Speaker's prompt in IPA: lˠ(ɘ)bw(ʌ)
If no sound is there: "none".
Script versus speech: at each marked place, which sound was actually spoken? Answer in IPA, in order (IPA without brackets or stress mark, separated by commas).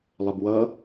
ɘ, ʌ